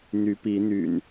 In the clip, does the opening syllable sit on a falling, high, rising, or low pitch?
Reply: rising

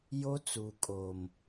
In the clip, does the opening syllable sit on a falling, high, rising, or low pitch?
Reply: high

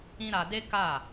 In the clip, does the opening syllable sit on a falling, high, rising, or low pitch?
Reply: high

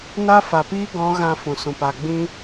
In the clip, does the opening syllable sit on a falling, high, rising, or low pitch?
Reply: high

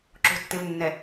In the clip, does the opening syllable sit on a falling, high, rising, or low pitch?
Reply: low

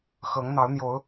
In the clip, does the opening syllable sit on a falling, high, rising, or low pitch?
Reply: rising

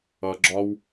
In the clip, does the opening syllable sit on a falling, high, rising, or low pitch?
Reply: high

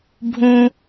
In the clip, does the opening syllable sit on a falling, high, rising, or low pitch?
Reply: high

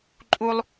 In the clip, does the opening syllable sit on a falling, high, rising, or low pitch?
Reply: high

